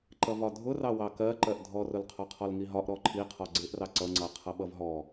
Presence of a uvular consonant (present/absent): present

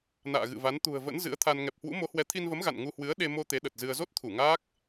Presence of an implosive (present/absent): present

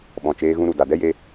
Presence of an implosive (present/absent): present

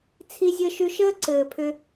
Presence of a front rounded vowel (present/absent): present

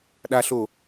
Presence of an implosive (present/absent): present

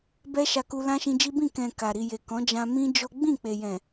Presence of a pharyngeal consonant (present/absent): absent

